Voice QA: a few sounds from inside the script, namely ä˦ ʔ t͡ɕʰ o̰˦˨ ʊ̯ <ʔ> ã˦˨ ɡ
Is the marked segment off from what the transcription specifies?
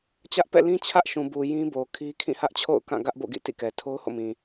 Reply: yes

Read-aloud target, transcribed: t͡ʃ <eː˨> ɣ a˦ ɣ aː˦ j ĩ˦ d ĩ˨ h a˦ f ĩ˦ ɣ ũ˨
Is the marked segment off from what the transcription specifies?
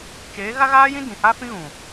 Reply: yes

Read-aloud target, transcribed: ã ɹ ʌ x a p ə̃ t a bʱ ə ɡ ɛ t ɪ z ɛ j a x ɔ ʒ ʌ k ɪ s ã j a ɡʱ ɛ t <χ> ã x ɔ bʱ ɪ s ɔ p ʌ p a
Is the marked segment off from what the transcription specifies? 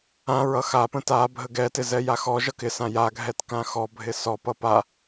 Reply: yes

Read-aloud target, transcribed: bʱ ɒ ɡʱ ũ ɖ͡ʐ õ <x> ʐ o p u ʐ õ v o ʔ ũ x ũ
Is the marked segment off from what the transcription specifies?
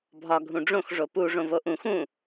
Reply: no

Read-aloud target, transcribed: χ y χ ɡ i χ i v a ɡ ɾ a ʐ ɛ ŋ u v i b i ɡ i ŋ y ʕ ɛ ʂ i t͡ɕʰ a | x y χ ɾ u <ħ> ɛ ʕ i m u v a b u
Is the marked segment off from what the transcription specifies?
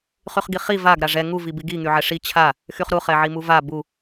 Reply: yes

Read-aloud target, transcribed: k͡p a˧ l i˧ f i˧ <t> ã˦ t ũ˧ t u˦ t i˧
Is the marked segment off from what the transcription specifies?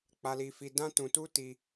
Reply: yes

